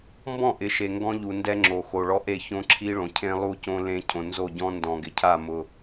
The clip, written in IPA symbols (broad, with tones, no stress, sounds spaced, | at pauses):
m b ɔ̃˦˨ ʔ ɪ˨˦ ʃ e˨ ŋ ɡ ɔ̃˦ ʎ u˨ n d ɛ˦ ŋ͡ǁ o˨ x o˨ ɭ ɔ˦ ʔ e˦˨ ç õ˦ ǁʰ i˦ ɭ õ˨ cʰ ẽ˦ lˠ u˦ c õ˦ l ẽ˦ cʰ õ˨ n z o˦˨ ɟ ɔ̃˦ n d ɔ̃˨ ɡ ɪ˨ cʰ a˦˨ m ʊ˨